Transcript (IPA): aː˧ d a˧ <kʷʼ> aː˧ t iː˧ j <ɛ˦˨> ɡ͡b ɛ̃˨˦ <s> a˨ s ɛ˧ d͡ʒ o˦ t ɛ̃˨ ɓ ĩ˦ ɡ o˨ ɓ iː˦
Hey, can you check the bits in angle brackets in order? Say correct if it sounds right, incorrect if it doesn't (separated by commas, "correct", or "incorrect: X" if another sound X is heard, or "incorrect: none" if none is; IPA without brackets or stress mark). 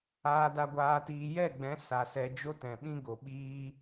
incorrect: ɡʷ, correct, correct